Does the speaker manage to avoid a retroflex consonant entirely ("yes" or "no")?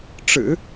no